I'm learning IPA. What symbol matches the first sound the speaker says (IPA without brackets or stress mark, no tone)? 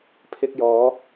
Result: pʰ